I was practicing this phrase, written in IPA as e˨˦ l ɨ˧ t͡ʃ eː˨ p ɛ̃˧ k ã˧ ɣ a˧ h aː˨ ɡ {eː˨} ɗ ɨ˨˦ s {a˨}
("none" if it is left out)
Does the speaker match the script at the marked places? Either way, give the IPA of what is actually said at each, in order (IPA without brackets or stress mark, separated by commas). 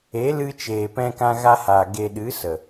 e˨, ə˨